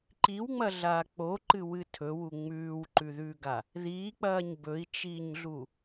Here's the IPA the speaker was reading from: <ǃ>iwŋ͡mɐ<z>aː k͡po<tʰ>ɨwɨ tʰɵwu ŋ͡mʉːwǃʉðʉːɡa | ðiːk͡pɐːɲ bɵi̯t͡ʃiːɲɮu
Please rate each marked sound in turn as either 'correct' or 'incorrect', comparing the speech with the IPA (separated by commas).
correct, incorrect, incorrect